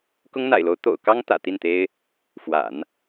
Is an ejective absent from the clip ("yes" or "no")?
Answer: yes